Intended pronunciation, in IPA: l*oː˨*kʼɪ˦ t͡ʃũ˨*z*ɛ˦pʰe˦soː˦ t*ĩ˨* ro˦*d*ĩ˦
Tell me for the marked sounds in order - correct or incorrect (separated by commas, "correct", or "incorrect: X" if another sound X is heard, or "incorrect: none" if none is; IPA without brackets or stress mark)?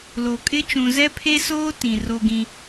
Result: incorrect: o˨, correct, correct, incorrect: ɡ